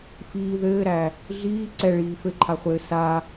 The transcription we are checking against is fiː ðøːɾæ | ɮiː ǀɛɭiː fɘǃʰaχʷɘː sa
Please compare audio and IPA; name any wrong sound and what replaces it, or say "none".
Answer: øː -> ɘː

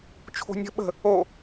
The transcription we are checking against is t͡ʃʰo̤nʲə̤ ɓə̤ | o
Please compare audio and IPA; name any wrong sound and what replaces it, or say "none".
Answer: none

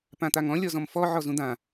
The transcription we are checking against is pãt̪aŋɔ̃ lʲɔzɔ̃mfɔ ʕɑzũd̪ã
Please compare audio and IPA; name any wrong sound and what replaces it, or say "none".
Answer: ɑ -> ɔ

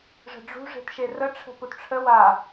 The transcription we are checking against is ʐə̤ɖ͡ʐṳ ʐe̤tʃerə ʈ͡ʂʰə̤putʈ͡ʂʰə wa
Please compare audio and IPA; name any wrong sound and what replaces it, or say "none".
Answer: none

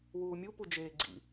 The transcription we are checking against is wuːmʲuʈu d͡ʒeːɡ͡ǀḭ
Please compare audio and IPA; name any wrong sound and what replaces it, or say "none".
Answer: ʈ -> p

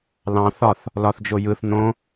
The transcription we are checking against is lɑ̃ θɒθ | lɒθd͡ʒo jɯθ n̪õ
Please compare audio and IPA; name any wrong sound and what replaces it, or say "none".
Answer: none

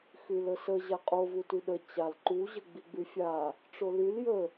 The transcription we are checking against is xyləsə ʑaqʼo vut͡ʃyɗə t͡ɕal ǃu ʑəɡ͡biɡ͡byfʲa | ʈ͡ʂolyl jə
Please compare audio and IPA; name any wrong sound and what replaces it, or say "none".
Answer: t͡ʃ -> t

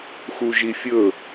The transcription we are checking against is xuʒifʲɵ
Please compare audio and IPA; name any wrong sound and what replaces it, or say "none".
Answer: none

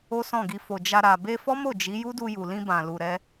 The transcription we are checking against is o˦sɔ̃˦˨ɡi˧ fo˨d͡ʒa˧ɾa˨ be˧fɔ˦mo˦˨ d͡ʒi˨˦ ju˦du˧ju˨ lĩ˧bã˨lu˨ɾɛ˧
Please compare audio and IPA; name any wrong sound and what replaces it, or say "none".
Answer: none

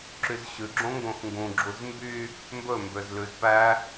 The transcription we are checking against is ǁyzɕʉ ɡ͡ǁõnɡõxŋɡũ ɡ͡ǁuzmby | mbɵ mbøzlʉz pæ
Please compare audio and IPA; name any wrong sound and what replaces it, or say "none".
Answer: n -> ŋ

